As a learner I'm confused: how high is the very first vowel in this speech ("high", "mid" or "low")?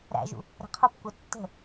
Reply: low